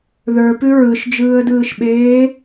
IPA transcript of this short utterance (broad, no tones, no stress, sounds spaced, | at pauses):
ð ə˞ p ʉ ɹ ɯ ʃ d͡ʒ ɯː ə̯ d ɯː ʃ ɓ eː